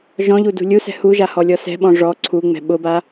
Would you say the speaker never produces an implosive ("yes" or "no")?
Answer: no